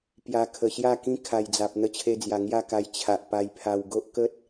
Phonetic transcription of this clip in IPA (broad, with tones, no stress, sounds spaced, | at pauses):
p j a˨˩ kʰ ə˨˩ ɕ j a˥˧ k ĩ˦ kʰ a˨˩ j d͡z a˨ p̚ n̪ ə˧ t͡ɕʰ e˧ d͡z j a˨˩ ŋ j a˥˧ k a˧ j t͡ɕʰ a˨ ʔ p a˧ j pʰ a˧ w ɡ o˦ ʔ k ə˦ t̚